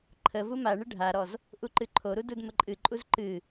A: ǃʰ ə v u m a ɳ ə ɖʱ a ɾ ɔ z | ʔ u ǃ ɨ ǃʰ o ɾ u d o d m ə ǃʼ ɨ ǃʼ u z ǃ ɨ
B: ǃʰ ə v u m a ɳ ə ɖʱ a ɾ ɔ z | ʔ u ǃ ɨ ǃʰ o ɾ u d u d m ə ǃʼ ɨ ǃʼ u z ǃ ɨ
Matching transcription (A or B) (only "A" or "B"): B